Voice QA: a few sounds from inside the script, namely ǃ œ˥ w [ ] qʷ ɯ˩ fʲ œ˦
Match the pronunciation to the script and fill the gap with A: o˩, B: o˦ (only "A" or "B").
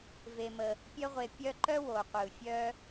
A